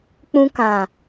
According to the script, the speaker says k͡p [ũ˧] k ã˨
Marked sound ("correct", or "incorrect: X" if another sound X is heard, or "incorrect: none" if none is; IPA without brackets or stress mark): correct